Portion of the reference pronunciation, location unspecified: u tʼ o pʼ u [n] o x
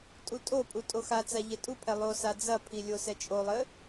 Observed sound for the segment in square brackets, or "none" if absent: tʼ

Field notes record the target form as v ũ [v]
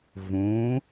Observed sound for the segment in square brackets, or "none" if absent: none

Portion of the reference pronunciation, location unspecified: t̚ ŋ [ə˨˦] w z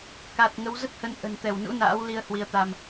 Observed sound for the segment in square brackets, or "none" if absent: ə˨˦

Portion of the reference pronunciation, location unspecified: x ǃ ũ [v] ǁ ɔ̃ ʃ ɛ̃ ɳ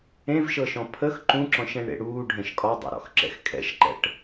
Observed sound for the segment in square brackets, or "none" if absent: none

